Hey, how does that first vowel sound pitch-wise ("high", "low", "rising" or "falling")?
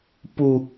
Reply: high